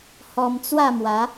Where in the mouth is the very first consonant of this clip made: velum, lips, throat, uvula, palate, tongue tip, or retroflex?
throat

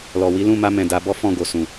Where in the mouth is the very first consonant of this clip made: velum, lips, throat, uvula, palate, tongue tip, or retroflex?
tongue tip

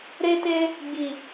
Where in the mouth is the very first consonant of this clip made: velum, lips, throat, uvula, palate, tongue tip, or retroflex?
tongue tip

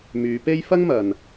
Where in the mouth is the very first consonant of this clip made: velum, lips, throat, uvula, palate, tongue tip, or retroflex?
lips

